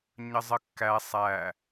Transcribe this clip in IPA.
ɲəzˤəkːæ sˤæ

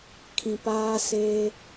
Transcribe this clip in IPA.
kʰĩ˨paː˦seː˦

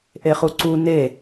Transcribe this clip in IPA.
ʔeχuǀu ne

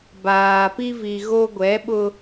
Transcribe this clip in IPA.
baː˨ pi˦vi˨ɣo˦ ɡʷɛ˨˦ɓʊ˦

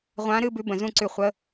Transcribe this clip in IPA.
ʁʷã˨˦ ɾɨ˧˥˧bʉ˨˦bə̃˩ zũ˥˨ǀʉ˧˩χʷə˧˥˧

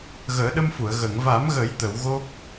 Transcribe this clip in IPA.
ɣəː˨˩˦ɗə˧mfu˨˩˨ə̯ ɣə˨˩˨ŋva˨˩˦mɣə˨˩˦j t̪ə˨˩˦wɣo˦˥k̚

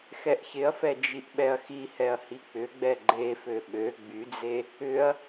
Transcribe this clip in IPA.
xɛʔçɪɐ̯fɛ d͡ʒiʔɓɛɐ̯xihɛɐ̯ hik͡pʏɡ͡bɛ ɡ͡ǃefø ɓø ɡ͡byd͡ze | ʏɐ̯

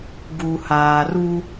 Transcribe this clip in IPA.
ɡu˨haː˨ru˦

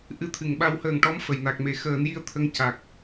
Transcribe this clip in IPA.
ʔɨ˧t̪ʰɨ˨˩˨ŋɓa˧˥w həː˨˩ŋʈɔ˧˥m fə˨˩jna˨˩k̚me˨˩˦ xəː˨˩˦nji˧ə̯ t̪ʰə˧˥ŋ ca˨˩k̚

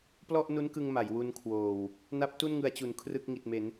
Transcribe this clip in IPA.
plɔ˥˩ʔnu˦˥nkɯ˧ŋ ma˩˦jwu˧nkʰwoː˨˩w | na˦˥p̚ tu˥˩nŋɯ˧a̯t͡ɕu˨˩n kʰrɯ˥˩k̚ ŋi˨˩t̚me˩˦n

